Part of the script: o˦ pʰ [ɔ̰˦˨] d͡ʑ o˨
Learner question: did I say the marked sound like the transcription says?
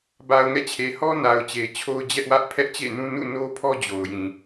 no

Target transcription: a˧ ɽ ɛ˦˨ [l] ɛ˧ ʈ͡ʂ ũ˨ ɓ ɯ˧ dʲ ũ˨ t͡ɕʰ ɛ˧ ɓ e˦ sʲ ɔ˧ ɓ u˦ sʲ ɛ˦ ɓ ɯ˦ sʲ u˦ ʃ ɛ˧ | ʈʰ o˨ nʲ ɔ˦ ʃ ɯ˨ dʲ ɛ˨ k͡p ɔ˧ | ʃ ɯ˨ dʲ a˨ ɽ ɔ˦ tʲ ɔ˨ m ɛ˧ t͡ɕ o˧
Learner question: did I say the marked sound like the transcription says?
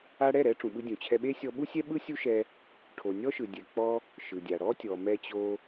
no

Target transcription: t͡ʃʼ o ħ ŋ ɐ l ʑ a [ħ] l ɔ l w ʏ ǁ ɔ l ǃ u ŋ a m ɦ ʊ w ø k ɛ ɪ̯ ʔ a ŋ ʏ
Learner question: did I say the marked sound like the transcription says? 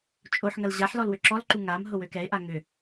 yes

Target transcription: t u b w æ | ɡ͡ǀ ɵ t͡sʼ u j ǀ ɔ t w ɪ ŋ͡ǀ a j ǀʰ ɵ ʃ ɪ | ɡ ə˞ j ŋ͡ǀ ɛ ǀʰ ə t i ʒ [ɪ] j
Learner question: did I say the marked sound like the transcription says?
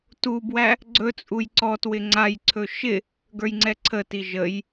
no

